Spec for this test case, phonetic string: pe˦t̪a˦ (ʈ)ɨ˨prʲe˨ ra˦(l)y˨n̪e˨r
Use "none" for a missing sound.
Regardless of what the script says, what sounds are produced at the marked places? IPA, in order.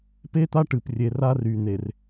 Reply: ʈ, r

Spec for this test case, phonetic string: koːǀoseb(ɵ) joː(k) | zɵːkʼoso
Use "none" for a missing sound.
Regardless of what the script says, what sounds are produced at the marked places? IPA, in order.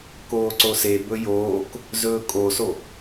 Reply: ɵ, k

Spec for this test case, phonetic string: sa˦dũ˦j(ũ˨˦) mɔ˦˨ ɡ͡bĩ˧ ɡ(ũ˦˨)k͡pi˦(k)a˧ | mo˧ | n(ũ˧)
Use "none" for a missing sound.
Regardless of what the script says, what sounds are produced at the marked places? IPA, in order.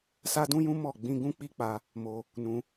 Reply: ũ˦, ũ˦, k͡p, ũ˦

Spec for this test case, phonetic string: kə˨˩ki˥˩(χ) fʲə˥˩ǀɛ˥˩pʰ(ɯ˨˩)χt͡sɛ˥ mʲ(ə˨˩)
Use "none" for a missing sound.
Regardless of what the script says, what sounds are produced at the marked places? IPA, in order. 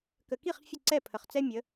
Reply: χ, ə˨˩, ə˨˦

